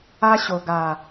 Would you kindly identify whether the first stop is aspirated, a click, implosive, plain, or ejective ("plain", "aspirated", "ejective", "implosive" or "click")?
plain